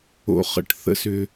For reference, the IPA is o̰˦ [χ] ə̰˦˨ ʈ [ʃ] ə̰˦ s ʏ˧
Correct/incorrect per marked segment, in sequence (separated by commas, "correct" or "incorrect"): correct, incorrect